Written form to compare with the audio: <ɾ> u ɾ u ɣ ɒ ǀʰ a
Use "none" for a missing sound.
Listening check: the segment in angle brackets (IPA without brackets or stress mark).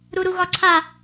ɾ